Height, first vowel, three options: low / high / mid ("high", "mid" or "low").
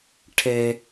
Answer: mid